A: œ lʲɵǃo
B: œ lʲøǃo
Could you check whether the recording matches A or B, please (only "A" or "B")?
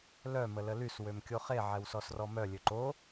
B